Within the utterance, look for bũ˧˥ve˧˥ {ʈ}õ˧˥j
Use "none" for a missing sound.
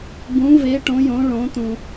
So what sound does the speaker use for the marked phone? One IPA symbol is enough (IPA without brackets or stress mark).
ʈ